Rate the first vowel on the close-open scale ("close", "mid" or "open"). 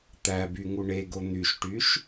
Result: open